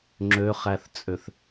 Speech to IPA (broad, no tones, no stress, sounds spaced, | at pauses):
ŋ͡ǁ ø χ æ θ t͡sʼ ø θ